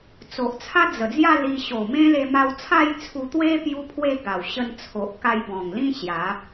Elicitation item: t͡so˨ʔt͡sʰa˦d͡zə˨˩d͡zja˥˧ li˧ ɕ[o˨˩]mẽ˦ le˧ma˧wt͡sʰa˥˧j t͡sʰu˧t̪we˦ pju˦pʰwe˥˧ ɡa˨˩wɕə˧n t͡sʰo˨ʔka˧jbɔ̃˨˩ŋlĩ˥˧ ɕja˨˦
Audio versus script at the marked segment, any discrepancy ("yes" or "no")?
no